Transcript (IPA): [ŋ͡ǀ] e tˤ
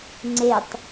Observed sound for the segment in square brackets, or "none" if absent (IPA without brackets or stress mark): ŋ͡ǀ